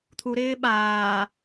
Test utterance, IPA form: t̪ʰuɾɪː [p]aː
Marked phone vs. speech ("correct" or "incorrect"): incorrect